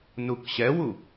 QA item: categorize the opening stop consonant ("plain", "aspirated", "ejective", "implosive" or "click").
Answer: plain